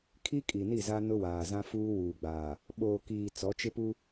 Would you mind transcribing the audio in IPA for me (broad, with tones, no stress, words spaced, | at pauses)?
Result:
kʰi˦kʼi˨ni˦˨za˦ nʊ˦waː˨zã˦ fuː˦wuː˨ɡ͡baː˨ | ɓoː˨kiː˨ t͡sɔ˨˦t͡ʃɪ˦ pu˦